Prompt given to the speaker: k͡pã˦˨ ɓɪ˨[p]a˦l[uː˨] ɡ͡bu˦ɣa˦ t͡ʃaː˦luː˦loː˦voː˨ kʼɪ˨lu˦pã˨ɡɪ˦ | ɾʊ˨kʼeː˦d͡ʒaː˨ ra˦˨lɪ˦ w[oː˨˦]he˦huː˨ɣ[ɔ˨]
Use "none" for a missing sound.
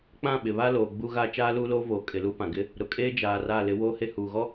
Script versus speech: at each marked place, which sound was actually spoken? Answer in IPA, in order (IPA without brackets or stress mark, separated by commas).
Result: β, oː˨, oː˦, ɔ˦